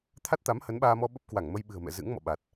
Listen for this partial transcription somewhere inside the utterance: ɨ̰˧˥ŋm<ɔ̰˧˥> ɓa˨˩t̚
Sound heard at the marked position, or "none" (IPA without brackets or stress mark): ɔ̰˧˨